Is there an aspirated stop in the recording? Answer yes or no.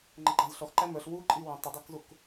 no